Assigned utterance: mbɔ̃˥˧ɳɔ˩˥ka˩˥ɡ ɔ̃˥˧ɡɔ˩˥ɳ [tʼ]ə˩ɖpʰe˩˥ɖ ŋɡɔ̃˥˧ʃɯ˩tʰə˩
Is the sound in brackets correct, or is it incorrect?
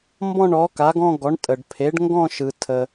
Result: correct